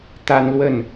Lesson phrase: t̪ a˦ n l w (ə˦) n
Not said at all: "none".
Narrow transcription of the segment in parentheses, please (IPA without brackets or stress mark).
ə˥˨